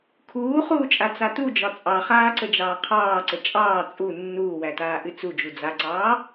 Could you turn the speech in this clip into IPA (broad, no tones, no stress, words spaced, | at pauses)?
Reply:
kʰuːχuːt͡ʃʼat͡sa tud͡ʒɒ t͡sʼɑχaːǀəd͡ʒɑː qʰɑːǀə t͡ʃʼɑː t͡sʼu nːuːwætaːʔɨ t͡sud͡ʒu d͡zaǀɑː